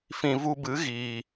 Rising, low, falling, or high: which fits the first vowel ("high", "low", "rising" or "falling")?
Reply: low